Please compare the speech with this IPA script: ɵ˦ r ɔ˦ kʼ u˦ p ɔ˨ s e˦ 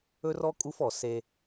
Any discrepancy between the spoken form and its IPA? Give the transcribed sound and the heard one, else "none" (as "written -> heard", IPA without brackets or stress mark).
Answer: p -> f